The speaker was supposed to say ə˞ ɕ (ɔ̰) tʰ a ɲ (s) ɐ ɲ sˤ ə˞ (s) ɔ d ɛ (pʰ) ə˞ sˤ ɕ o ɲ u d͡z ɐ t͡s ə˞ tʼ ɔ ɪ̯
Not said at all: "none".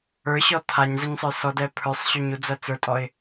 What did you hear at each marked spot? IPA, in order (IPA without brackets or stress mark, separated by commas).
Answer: ɔ, z, s, pʰ